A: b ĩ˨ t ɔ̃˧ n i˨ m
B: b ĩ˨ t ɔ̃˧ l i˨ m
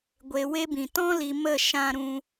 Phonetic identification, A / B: B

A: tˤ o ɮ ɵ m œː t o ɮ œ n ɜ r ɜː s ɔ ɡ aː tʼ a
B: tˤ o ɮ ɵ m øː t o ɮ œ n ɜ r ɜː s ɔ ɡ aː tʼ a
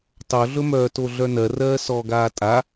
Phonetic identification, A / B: A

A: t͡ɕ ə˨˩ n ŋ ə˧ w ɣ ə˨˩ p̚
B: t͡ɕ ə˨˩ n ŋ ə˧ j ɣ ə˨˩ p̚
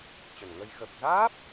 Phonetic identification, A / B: B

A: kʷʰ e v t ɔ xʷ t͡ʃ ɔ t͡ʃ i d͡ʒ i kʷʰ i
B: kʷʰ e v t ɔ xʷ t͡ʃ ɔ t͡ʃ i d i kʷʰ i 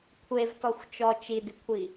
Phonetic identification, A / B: B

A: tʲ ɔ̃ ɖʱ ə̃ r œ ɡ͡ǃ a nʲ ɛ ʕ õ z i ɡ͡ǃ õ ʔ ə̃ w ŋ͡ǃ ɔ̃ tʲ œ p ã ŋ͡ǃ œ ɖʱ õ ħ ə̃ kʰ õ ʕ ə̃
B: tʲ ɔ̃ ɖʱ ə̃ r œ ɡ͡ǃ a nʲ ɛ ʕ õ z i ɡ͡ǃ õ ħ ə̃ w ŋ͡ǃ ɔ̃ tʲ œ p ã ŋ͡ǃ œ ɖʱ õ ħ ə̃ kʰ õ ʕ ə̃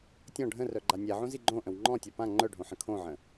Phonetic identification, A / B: A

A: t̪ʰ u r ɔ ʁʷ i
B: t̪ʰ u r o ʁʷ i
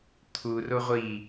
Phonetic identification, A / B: B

